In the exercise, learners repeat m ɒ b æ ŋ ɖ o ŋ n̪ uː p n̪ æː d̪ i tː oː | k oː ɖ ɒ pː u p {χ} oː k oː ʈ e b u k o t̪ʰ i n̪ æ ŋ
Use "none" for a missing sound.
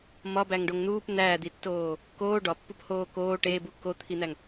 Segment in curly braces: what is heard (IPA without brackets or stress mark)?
h